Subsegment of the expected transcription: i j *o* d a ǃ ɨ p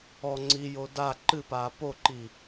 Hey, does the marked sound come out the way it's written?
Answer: yes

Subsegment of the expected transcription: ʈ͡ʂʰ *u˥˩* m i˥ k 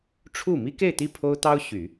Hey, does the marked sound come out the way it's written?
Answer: yes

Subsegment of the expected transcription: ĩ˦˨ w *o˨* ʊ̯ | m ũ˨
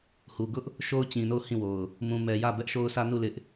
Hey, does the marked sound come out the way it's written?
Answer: yes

